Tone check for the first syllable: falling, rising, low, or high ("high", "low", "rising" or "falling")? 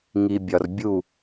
low